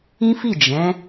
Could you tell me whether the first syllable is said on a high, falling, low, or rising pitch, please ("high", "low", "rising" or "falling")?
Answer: high